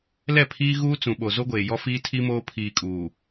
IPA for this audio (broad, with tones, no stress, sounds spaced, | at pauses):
l ɛ˦˨ pʰ iː˦ ɣ uː˦ t͡s ũ˨ ɓ o˨ z o˦ ɡʷ eː˨ j ɔ˦ f iː˦ tʰ i˦ m oː˦ pʰ iː˨ kʼ uː˨